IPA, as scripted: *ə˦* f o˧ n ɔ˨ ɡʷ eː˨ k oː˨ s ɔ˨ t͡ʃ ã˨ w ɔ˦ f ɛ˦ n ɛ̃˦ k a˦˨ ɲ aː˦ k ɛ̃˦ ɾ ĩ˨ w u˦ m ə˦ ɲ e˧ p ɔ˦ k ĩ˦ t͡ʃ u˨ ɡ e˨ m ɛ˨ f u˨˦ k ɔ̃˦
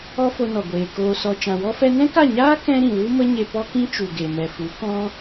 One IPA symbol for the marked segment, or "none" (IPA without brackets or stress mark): ɔ˦